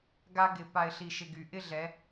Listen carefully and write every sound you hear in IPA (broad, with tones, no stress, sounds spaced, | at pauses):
ɡ a˥ ɡ ɪ˧˩ p a˧ ɪ̯ ɬ i˧˩ ʃ ɪ˧ ɡ y˩˧ ʔ ɪ˥˧ ɮ ɛ˩˧